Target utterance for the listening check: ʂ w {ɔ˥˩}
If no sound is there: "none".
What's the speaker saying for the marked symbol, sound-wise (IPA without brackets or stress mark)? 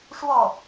ɔ˥˩